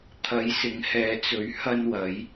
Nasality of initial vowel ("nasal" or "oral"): oral